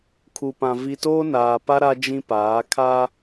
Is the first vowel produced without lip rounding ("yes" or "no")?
no